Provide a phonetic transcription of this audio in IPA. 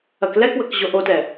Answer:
ɐ k l ɛ k w ə k ʑ o ʔ o t ɛ

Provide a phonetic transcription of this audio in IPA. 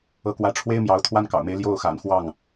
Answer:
ɤ˧˥ k w ä˧˥ ʈ͡ʂʰ w e˥ ɪ̯ m j ɑ˧˥ ʊ̯ t̪ʰ w a˥ n k ɑ̰˨˩ ʊ̯ m e˧˥ ɪ̯ l j o˥˩ ʊ̯ x a̰˨˩ n x w ɑ˥˩ ŋ

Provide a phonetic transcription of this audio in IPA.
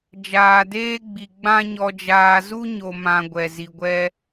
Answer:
d͡ʒ aː˨ d eː˦ ɡ͡b i˨ ɡ͡b ã˦ ɲ ɔ˧ d͡ʒ aː˧ z u˦ ɲ o˨ m ã˨ ɡʷ ɛ˨ z i˨ ɡʷ ɛ˧

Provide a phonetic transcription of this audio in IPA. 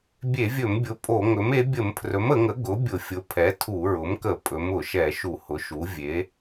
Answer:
bʲ e˧˩˧ vʲ ɵ˧˩˧ m bʲ ʊ˩˥ pʼ o˧˩˧ ŋ ɵ˩˥ m e˩˥ bʲ ə˧˩˧ m pʰ r ɵ˩˥ m ə˧˩˧ ŋ ə˩˥ ɡ ʊ˩˥ bʲ ʊ˧˩˧ fʲ ʊ˩˥ pʰ ɛ˩˥ tʰ u˧˩˧ ɹ ʊ˩˥ m k ə˧˩˧ pʼ ɵ˩˥ m ʊ˧˩˧ ʃ ɛ˧˩˧ ʃ u˧˩˧ h ʊ˩˥ ʃ u˩˥ vʲ e˩˥

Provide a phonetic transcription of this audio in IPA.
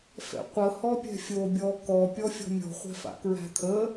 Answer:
f ɛ̰ qʷ ə h ɔ pʲ ɛ̤ fʲ o bʲ ɔ k ɔ pʲ ɔ fʲ ɔ̤ mʲ ɔ̤ χʷ ɛ̤ f a̰ k ɹ æ̤ t̪ʰ ə

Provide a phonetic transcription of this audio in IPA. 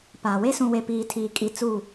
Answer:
p aː˨ w e˦ s ũ˨ w e˨ p iː˨ tʰ iː˨ kʼ i˨ t͡s u˦˨

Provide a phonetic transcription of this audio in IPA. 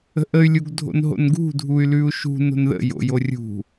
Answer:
ə̤ ʔ ə y̯ lʲ u ɡ dʱ o̰ n ɦ o̰ n ɡ ṳ dʱ u y̯ l ʉ u̯ ʃ ṳ n o̤ n ð ə̰ j o̰ j o rʲ ṳ

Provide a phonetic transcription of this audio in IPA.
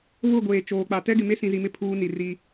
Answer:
β ʊ˦˨ ɡʷ eː˨ t͡ʃ oː˨ k͡p a˨ t ɛ˦ ɡ ɪ˨ m e˦ s ĩ˨ z i˨ m ɪ˦ pʰ uː˦ n i˨ r i˦

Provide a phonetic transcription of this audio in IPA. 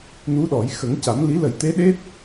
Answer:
n u˧˥ ɗ ɔ˨˩˦ j x ə˨˩˦ ŋ c a˨˩˦ m l i˧˥ l ə˨˩˦ j t̪ e˧˥ ɗ e˦˥ t̚

